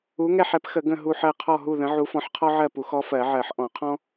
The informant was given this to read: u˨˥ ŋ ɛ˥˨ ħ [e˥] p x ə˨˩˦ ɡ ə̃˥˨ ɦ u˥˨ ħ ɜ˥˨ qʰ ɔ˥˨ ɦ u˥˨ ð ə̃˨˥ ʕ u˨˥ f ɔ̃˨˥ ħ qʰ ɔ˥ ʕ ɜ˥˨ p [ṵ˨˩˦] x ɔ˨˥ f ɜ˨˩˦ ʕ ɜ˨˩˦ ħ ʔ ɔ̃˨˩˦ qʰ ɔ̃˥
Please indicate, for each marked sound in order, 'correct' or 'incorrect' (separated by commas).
incorrect, incorrect